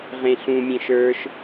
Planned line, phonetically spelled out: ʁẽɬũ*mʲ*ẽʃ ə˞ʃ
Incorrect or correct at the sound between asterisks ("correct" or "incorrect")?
correct